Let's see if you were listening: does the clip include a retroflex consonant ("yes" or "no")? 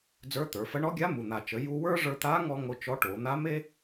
yes